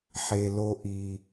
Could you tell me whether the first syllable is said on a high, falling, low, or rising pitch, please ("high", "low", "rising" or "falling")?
low